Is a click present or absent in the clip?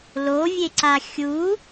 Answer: present